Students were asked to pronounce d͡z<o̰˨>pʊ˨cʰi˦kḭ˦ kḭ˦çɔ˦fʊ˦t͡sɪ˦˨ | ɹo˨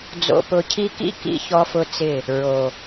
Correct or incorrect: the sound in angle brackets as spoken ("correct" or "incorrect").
correct